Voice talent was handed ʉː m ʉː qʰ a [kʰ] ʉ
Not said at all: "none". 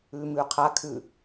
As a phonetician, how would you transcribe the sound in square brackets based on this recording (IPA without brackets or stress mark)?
kʰ